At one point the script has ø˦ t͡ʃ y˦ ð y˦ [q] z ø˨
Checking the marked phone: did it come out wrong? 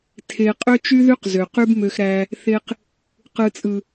no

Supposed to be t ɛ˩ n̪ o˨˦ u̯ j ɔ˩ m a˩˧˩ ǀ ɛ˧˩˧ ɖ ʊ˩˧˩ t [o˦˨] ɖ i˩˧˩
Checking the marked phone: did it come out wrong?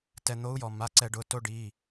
yes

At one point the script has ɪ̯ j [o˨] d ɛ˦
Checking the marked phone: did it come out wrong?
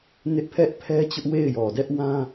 yes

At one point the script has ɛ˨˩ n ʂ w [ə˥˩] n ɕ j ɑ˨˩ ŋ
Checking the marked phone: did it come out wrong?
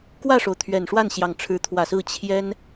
yes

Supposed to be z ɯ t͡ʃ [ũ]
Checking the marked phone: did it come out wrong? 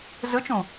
no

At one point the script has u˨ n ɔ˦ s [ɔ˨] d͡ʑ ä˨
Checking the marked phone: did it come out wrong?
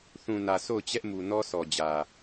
no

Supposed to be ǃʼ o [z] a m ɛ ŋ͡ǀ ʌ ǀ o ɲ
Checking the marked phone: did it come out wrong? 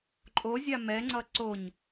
yes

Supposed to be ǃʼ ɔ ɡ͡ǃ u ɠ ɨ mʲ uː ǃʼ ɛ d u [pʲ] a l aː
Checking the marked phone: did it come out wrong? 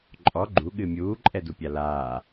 no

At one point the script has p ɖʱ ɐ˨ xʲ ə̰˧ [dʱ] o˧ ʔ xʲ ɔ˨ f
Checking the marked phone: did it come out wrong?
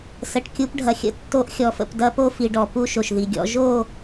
yes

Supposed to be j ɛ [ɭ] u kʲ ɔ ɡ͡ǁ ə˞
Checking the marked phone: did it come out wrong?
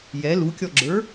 yes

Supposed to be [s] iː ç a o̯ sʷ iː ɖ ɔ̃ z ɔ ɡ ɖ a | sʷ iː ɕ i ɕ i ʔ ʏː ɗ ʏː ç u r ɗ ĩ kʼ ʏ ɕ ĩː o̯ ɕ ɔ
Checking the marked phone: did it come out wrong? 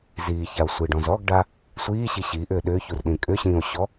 yes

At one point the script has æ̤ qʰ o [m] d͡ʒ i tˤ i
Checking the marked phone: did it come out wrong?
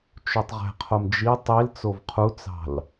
no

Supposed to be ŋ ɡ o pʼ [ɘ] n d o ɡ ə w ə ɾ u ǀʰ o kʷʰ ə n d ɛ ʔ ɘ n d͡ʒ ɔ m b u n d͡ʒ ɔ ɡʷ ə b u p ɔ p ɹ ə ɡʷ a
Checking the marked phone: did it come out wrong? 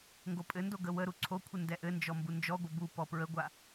no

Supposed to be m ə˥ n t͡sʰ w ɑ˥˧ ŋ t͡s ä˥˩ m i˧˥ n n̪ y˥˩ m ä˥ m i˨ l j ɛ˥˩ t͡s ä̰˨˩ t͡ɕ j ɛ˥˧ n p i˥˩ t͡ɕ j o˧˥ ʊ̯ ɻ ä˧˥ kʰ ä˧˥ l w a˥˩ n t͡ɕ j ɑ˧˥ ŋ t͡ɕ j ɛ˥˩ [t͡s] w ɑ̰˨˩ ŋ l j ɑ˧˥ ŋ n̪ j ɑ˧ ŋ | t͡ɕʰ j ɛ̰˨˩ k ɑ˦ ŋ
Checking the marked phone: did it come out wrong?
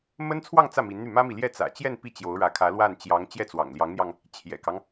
no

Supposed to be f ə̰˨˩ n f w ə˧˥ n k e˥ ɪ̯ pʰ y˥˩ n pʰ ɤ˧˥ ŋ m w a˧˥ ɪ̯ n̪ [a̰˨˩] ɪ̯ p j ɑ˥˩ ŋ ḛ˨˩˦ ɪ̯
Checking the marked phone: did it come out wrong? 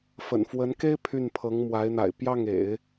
no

